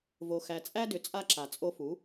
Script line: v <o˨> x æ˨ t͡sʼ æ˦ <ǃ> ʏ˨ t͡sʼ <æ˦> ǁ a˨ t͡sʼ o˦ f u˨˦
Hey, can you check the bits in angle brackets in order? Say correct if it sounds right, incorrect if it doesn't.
correct, incorrect: d, incorrect: a˦

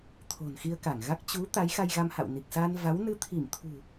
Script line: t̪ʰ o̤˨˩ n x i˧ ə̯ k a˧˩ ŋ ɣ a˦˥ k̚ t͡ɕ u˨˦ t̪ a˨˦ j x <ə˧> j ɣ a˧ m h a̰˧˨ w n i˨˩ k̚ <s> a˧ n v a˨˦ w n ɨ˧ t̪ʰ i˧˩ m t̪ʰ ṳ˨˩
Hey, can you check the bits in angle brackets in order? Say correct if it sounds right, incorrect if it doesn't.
incorrect: a˧, correct

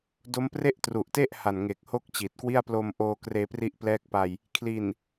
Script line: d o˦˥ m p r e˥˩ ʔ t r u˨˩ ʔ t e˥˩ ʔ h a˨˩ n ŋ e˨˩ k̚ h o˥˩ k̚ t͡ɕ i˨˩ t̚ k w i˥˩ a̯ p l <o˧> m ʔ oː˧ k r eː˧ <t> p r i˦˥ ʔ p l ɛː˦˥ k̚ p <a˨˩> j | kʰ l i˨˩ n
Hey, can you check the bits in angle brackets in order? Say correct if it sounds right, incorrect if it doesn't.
correct, incorrect: none, incorrect: a˧

